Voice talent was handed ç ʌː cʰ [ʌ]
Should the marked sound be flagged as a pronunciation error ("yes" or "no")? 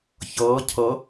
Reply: no